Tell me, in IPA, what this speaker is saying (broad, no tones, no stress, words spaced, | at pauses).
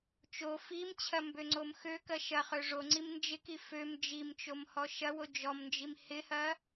t͡ʃo fimt͡ɕʰɐ mbøŋ͡ǀomxøkɐ ʃɐχø ʐoŋ͡ǀim nd͡ʒɪki føm d͡ʒimt͡ʃom hɔʃɐwo d͡ʒɔmnd͡ʒim hɪhɐ